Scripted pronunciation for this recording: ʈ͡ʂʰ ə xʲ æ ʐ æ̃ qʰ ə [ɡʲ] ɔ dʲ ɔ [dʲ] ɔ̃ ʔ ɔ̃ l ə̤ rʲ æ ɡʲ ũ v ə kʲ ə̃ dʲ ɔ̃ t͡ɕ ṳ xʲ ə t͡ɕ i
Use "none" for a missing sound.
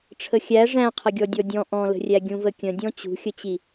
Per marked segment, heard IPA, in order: ɡʲ, dʲ

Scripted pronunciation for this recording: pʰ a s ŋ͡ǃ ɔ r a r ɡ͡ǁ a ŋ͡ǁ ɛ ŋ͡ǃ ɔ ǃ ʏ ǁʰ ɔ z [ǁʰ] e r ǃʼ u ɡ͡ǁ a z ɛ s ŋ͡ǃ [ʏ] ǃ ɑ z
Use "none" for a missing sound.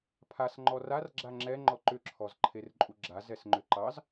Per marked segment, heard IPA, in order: ǃʰ, ʏ

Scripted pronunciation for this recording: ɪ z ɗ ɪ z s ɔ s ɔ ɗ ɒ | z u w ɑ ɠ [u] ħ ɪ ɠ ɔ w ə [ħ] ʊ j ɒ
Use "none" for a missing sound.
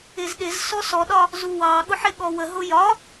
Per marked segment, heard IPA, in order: ʊ, ɦ

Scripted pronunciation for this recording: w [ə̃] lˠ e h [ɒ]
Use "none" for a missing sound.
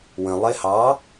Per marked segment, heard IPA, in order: ə̃, ɑ

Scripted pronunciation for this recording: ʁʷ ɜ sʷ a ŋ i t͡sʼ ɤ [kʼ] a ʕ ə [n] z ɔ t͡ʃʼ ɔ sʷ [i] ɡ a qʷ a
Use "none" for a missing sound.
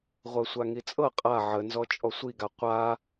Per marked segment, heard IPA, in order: qʼ, n, i

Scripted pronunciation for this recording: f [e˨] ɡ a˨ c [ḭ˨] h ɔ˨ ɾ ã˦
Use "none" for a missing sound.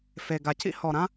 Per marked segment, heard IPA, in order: e˨, ḭ˦

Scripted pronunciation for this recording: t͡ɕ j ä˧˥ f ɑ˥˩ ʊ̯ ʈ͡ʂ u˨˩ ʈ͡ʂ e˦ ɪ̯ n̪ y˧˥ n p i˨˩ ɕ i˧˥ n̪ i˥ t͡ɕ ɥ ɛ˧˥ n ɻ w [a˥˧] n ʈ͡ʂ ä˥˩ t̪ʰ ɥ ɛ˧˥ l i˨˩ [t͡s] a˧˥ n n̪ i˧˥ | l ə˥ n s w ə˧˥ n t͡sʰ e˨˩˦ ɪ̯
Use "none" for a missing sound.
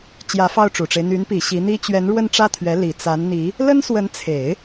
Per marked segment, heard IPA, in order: ə˥˧, t͡s

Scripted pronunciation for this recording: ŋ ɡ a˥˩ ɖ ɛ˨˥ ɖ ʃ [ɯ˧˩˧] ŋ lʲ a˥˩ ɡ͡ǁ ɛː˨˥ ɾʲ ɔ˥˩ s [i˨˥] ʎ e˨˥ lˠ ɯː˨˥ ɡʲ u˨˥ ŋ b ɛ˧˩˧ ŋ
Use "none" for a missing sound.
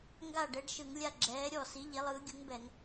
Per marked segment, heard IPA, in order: ɯ˧˩˧, i˨˥

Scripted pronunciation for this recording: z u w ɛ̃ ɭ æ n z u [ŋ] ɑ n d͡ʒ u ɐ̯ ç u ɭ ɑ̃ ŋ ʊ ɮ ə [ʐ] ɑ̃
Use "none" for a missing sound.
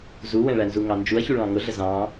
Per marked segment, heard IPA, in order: ŋ, z

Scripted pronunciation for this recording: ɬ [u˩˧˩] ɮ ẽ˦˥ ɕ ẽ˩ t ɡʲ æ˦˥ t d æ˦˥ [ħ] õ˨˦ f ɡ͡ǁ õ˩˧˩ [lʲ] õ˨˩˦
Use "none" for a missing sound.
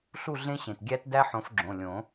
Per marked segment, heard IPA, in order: u˥˨, ħ, lʲ

